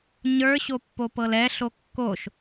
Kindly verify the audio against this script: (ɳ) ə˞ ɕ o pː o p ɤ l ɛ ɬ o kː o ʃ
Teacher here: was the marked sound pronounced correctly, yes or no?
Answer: no